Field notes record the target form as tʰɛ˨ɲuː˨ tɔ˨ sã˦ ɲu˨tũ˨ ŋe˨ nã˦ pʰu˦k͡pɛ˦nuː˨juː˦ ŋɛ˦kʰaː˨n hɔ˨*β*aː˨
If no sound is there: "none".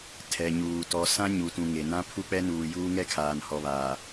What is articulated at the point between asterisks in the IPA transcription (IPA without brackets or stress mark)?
β